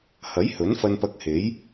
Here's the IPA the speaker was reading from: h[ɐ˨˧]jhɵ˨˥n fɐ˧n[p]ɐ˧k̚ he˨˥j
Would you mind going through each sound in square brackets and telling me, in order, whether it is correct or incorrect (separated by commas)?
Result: incorrect, correct